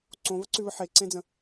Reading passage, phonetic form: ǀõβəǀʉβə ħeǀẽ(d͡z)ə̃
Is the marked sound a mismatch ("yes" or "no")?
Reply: no